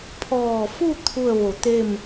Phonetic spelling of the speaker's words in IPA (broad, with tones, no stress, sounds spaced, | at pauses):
pʰ ɔː˧˩ f u˥˨ t̪ʰ u˥˨ ə̯ ʋ o˧˩ t̪ e˥˨ m